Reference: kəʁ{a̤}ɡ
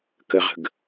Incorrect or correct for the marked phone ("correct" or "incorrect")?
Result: incorrect